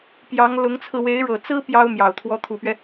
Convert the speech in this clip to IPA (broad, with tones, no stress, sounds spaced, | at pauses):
p j ɑ˧˥ ŋ l ʊ˧˥ ŋ t͡sʰ ɹ̩˧ w e˧˥ ɪ̯ ɻ ɤ˨˩ t͡s ɹ̩˥ p j ɑ˥ ʊ̯ m j ɑ˨˩ ʊ̯ t̪ʰ w ɔ˧˥ t̪ʰ u˨˩ p ɥ ɛ˦